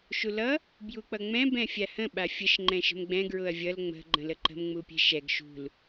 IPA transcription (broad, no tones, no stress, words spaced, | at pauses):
ʃulʌ | bjuk͡pʌŋ͡mɛ̃ bɛ̃fʲahə̃ ɓafʲəʃ ŋ͡ǃɛ̃ʃə̤mɡ͡bɛ̃ ɡɹʊɐ̯vʲʌl ŋ͡mə̤ ɡ͡ǃə̃ləǃə̤m ŋ͡mupʲɛ̤ʃɛɡ ʃṳl